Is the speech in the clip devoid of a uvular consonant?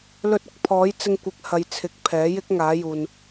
yes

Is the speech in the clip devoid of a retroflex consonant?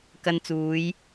yes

